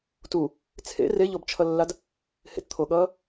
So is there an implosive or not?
yes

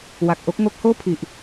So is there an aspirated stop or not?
yes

